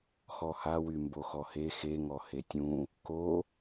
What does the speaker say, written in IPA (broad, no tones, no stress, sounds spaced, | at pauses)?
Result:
x ɔ h a w y m b o x ɔ h e x e ŋ ɔ h e tʲ ũ | k o